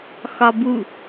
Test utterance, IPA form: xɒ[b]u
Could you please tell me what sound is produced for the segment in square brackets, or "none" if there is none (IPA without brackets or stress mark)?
b